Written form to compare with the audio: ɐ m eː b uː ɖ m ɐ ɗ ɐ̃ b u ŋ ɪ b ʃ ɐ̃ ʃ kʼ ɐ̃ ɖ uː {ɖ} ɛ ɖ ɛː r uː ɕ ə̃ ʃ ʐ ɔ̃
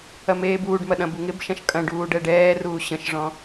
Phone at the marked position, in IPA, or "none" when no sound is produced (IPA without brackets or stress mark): ɖ